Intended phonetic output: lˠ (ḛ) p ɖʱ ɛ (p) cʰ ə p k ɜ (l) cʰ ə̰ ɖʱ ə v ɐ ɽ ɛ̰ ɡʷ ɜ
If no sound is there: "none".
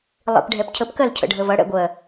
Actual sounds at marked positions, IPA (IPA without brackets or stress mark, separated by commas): ḛ, p, l